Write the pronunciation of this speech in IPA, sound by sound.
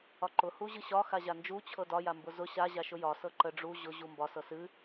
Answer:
ɒ ǃ ʊ h u ʑ ɨ ɕ ɒ x a ʑ a n d͡ʒ u t͡ɕʰ ɤ d ɒ j a m b ʊ z ʊ ɕ a ʑ a ʃ ʊ j ɒ s ɤ ǃ ə ɖ͡ʐ u ʑ ʊ ʑ u m b ɒ s ɤ s ɨ

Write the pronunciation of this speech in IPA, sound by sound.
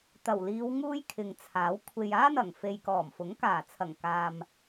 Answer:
t̪ ɐ˨˩ w l iː˨˧ w ŋ uː˥ j kʰ ɪ˨ ŋ t͡sʰ aː˨˥ w kʷʰ e˨ j aː˥ n̪ ɐ˨˩ ŋ f e˨ j k ɔː˨˩ m f ʊ˨˥ ŋ k aː˨˩ t͡sʰ ɐ˨˩ ŋ k aː˨ m

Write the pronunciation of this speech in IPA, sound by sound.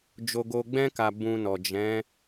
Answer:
d͡ʒ o˧ ɡ o˧ ɡ͡b ɛ̃˦ k a˧ b ũ˧ n ɔ˨ d͡ʒ ɛ̃˨˦

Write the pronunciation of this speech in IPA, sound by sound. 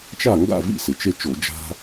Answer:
t͡ʃ a˥˨ ŋ ɡ a̰˥˨ v ḭ˥˨ s ɪ˩ t͡ʃ e˦ t͡ʃ o˧˩˧ d͡ʒ a̤˦

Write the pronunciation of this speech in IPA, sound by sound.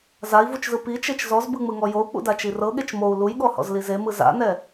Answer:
z a i̯ v u t͡ʃ z ɯ p i t͡ʃ e t͡ʃ z ɔ z b ɯ ŋ͡m ɯ ŋ ɔ j o u̯ k͡p ṵ d a t͡ʃ i r ɤ ɠ e t͡ʃ m o u̯ l u j ɠ ɔ h ɔ̰ z l i z e m ɯ z a̰ n ɛ

